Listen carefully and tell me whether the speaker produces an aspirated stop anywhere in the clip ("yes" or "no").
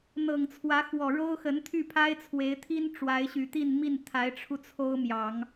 yes